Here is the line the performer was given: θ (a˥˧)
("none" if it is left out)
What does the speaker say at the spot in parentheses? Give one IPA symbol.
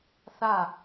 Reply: a˥˧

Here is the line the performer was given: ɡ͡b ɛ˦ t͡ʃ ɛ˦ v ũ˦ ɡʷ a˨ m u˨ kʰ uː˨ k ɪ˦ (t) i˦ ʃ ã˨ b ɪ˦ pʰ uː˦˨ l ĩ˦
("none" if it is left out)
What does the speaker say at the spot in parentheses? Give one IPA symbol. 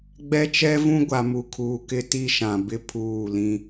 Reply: t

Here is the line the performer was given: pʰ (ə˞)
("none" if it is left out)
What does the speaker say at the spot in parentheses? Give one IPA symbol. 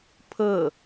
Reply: ɤ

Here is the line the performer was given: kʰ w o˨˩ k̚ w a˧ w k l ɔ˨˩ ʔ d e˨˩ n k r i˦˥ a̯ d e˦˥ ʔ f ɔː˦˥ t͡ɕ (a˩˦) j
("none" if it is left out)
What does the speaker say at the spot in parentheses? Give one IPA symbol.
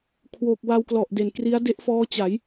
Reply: a˩˦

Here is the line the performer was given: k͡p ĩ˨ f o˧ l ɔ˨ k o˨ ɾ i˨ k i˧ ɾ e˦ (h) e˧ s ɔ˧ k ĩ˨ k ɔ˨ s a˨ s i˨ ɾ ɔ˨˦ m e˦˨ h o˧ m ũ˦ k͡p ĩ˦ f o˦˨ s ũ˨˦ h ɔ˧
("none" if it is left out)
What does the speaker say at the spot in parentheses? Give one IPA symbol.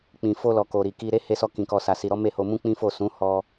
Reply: h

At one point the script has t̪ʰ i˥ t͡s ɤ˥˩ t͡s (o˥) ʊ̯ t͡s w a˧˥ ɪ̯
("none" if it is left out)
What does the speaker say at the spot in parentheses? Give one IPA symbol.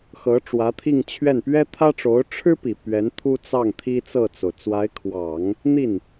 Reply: o˩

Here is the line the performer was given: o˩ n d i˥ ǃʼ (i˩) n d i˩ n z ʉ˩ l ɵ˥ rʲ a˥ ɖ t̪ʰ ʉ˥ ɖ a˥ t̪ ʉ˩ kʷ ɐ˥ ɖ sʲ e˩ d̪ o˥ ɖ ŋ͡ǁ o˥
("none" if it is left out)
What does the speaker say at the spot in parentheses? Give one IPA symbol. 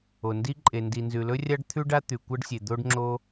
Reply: e˩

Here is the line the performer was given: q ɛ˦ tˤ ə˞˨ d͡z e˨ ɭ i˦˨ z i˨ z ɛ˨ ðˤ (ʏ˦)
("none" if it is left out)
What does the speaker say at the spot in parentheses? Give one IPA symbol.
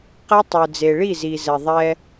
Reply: ɛ˦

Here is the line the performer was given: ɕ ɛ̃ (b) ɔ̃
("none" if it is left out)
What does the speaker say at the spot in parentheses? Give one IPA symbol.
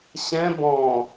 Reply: b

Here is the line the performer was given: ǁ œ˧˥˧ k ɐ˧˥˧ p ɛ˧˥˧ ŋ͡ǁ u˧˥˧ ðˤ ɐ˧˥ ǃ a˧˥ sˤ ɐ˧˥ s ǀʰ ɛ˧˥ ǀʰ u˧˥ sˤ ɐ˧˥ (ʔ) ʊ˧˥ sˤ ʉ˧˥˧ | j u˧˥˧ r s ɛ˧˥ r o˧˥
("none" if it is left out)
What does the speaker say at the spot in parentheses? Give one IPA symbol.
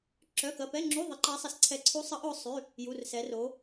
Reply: ʔ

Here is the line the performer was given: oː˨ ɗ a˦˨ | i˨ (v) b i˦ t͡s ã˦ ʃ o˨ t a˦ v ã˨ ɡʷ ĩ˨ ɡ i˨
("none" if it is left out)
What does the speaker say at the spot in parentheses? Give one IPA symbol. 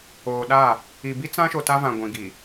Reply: none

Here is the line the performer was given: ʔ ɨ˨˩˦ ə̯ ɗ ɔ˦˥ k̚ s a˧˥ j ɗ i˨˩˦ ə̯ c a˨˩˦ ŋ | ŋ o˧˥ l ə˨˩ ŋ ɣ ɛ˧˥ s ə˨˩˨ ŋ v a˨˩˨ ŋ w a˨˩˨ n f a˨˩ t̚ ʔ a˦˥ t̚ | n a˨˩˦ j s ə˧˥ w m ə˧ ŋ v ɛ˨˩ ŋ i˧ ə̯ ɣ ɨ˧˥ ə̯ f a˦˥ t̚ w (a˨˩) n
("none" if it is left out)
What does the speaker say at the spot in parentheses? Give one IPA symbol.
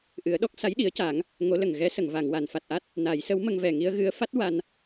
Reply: a˧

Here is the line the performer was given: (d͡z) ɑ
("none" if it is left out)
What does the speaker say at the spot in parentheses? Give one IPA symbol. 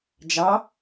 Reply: d͡ʒ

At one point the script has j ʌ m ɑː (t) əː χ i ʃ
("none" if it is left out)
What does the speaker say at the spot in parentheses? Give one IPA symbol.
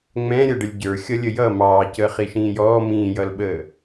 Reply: c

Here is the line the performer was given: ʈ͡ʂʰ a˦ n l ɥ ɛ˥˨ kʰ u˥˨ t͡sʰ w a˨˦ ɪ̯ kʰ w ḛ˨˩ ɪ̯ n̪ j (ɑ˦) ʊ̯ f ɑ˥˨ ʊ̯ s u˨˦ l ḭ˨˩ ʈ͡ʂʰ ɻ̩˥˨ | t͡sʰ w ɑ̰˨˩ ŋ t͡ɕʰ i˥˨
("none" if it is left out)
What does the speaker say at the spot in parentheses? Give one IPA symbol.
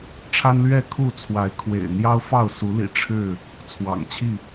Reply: ɑ˦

